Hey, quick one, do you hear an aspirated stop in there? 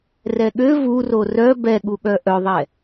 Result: no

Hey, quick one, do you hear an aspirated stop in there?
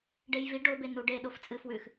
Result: no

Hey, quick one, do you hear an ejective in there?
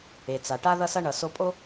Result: yes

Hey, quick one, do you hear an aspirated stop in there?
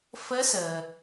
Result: no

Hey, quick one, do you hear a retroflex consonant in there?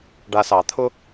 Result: yes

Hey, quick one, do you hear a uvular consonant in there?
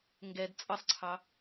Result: no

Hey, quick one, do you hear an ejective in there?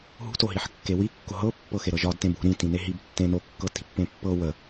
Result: no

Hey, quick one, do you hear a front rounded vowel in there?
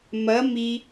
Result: no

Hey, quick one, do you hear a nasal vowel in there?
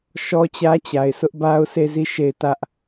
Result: no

